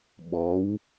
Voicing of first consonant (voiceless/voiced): voiced